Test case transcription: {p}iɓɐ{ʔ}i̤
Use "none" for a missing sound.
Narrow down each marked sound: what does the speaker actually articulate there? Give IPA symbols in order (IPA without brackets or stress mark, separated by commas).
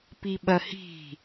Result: p, h